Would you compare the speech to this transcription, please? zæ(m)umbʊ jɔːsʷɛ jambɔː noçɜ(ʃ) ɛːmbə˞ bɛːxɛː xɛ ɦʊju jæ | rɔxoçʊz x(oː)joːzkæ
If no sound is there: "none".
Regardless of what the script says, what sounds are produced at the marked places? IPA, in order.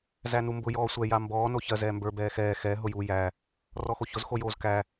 n, z, o

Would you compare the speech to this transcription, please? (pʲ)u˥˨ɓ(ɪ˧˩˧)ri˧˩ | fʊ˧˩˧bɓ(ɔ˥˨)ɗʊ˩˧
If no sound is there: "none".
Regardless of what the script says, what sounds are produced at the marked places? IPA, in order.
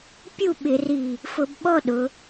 pʲ, ɪ˧˩˧, ɔ˥˨

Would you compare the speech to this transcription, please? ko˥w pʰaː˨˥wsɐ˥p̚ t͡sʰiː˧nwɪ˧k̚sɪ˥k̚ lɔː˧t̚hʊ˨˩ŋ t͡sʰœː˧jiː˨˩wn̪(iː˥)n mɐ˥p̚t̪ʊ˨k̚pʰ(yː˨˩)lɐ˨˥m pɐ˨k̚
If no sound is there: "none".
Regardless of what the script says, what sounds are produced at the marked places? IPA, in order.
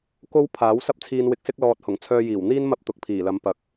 iː˥, iː˨˩

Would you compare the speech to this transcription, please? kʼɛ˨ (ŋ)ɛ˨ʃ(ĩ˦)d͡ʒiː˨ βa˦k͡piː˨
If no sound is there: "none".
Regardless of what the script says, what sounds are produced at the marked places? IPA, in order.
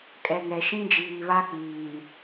ŋ, ĩ˦

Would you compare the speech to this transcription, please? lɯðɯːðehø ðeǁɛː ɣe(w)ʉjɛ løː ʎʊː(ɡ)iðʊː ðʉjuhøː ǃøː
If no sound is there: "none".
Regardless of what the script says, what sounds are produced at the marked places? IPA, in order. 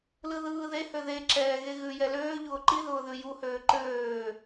ɣ, ǃ

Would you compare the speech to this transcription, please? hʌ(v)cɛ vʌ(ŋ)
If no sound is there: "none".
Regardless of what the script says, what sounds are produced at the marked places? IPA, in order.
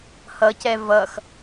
none, x

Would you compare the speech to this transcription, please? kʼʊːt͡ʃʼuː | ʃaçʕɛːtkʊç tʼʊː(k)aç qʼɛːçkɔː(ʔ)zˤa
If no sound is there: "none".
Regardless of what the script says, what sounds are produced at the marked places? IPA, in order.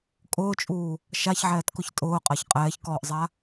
qʼ, ʔ

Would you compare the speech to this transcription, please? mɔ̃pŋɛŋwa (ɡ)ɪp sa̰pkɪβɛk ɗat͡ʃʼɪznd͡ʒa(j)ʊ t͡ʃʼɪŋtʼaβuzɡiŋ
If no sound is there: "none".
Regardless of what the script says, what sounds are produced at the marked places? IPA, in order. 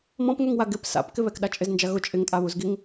ɡ, ɣ

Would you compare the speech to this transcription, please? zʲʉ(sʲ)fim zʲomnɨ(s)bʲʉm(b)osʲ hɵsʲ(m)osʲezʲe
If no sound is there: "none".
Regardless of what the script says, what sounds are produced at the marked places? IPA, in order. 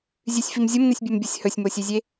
sʲ, sʲ, bʲ, m

